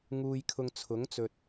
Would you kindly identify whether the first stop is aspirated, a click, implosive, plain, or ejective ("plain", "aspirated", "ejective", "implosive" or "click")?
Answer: aspirated